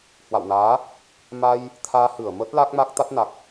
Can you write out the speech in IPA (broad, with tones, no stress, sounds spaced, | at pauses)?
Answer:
h w a̰˧˨ w n aː˨˦ | m a˧ j | t̪ʰ aː˧ h ɨ˧˩ ə̯ m ə˦˥ t̚ l a˦˥ k̚ m a˦˥ k̚ t̪ a˦˥ t̚ n a˨˩ k̚